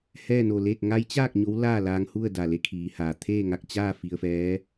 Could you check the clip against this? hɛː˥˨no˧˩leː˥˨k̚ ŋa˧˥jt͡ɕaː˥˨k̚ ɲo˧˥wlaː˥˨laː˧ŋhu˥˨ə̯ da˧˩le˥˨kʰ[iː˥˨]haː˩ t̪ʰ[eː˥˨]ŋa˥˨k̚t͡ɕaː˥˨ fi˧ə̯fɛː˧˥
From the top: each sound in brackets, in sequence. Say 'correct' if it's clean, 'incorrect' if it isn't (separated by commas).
incorrect, correct